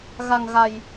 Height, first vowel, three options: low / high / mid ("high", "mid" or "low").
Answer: low